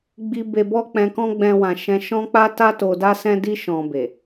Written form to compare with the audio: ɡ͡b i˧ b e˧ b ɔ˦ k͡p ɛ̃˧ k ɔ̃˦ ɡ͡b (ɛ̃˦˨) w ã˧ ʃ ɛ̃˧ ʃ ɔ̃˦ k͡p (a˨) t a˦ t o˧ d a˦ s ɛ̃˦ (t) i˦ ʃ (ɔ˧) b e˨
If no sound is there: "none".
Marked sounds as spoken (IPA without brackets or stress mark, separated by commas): ɛ̃˦, a˦, d, ɔ̃˧